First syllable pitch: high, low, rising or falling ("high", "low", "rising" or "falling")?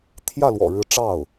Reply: falling